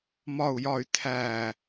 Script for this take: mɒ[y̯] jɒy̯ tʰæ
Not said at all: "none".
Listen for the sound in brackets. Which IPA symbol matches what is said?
u̯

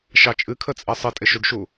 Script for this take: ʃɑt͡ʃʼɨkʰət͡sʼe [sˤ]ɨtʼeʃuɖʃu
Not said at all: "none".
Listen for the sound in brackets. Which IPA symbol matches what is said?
sˤ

